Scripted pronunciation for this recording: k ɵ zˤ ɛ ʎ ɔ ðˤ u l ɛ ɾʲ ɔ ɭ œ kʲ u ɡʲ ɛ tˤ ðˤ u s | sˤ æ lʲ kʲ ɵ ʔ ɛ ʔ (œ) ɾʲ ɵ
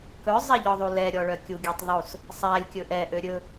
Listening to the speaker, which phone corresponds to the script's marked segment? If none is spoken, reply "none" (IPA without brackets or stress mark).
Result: ø